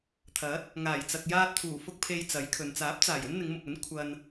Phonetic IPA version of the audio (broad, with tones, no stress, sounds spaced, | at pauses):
t̪ʰ ɐ˨˥ t̚ | ŋ aː˨˩ j t͡s ɐ˨ k̚ j aː˧ t̚ t̪ʰ uː˨˩ f ʊ˧ k̚ pʰ e˧ j t͡s ɐ˨˥ j kʰ ɵ˨ n t͡s aː˨˥ p̚ t͡s aː˨˩ j ɵ˥ n n̪ ɪ˨˧ ŋ m ʊ˨ k̚ ɵ˨˥ n kʷʰ ɐ˧ n